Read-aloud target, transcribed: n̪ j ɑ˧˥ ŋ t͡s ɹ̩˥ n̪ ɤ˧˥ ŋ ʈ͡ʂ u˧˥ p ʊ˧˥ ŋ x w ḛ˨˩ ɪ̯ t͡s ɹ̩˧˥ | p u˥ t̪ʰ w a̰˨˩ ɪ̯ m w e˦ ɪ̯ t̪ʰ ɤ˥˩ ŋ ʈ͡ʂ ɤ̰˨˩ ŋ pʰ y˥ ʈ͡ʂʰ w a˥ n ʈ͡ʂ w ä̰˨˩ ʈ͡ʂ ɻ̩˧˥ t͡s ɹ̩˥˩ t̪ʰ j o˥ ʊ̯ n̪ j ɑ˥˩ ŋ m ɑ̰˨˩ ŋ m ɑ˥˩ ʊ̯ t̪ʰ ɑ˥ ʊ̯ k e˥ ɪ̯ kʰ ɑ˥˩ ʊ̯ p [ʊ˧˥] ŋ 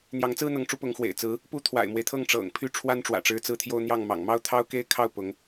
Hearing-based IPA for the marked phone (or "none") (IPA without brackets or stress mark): ʊ˧˥